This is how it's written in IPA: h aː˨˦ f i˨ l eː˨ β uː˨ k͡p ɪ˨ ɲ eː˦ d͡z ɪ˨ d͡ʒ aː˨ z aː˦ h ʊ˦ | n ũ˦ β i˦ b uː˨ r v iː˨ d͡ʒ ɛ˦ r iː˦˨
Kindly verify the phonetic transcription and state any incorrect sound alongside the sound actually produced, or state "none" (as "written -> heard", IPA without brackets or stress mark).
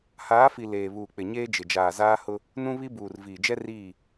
d͡z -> d͡ʒ